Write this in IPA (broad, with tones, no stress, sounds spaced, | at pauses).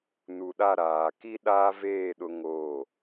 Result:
n u˨ ɗ a˦˨ ɾ aː˨ k i˦ ɗ aː˦ v eː˦˨ ɗ ʊ˦ ŋ oː˦˨